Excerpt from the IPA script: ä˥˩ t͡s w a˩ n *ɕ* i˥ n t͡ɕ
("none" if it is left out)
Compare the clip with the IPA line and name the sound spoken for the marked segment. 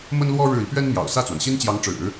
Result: ɕ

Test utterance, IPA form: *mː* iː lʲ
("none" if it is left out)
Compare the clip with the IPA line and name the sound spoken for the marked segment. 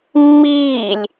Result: mː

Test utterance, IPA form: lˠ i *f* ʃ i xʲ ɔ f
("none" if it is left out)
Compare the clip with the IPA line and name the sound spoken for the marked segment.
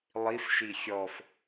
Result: f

